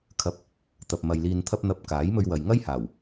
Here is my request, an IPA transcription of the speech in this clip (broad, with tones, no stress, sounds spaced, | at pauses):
kʰ ɐ˨˥ p̚ | t̪ ɐ˨ p̚ m ɐ˨ j l iː˨ n t̪ʰ ɐ˧ p̚ n̪ ɐ˧ p̚ k aː˨˥ j m ɵ˧ ɥ w ɐ˨ j ŋ ɐ˥ j h aː˨˩ w